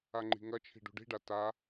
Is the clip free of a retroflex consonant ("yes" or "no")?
no